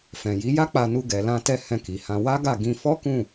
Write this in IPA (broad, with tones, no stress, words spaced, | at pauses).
fɛ̃˨ ji˨˦ja˦k͡pa˧nu˧ ɡɛ˨lã˧tɛ˧ hɛ̃˧ki˨hã˧ wa˦ɡa˦˨ɡĩ˧ fɔ˦kũ˦˨